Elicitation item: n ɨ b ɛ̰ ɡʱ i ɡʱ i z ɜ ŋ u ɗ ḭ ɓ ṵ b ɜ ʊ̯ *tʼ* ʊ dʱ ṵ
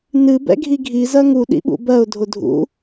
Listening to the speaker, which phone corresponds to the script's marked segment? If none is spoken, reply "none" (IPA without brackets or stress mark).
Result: dʱ